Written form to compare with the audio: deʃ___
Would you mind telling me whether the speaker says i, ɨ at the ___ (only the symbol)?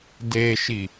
i